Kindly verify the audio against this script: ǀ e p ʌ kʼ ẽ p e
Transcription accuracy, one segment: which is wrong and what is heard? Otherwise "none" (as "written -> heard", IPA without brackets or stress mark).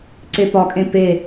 ʌ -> ɒ